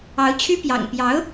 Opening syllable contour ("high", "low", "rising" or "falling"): rising